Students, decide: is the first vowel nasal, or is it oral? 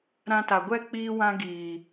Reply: nasal